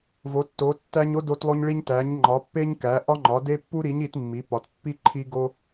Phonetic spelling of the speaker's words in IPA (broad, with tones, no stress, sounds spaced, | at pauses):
v o˨˦ tː o˨˦ tː æ˦ ɲ o˦ d o˦ t lˠ o˦ ɲ ɭ i˦ ɲ t æ˨˦ ɲ ŋ͡ǃ ɒ˨˦ pː e˦ ɲ k æ˨˦ ʔ ɒ˦ ŋ͡ǃ ɒ˨˦ d e˦ pː u˦ ɾ i˨˦ ɲ i˨˦ t mː i˨˦ p ɒ˨˦ t pː i˦ ǃʰ i˦ ɡ o˦